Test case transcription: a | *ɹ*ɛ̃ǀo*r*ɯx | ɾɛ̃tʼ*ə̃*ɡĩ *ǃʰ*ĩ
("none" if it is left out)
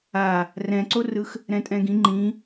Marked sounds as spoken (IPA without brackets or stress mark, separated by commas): r, r, ɛ̃, ŋ͡ǃ